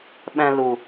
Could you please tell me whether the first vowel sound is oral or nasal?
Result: nasal